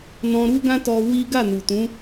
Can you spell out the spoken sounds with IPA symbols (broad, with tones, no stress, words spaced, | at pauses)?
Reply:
nɔ̃˧ɾu˦ɡã˦ tɔ˧ wi˦ ɡa˦˨nu˨tũ˨˦